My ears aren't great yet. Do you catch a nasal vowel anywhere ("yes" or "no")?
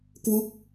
no